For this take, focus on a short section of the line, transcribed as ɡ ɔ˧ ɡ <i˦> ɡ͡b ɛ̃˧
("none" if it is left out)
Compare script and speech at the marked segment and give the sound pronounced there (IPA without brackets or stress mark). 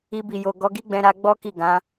i˦